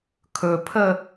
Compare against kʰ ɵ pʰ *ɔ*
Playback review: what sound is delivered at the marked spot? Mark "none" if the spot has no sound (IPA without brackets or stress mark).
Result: ə